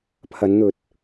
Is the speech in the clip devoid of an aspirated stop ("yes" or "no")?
no